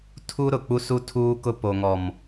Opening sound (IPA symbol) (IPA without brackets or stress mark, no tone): tʰ